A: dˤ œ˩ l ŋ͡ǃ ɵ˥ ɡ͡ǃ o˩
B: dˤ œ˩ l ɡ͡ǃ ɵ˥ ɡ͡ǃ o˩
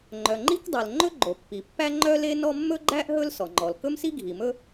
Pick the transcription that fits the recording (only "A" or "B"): A